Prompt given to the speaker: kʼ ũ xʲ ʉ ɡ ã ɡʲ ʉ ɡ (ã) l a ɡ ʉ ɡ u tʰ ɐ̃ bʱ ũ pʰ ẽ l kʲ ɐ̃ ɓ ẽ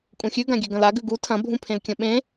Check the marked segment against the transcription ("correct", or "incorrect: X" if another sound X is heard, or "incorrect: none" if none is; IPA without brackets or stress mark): incorrect: ɐ̃